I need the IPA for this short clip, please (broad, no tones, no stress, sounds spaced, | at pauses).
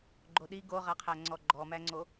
ɡ͡ǃ o ɗ i ɡ o ʁ a qʰ æ ŋ͡ǀ ɔ ɡ͡ǃ ɔ m æ ŋ͡ǀ o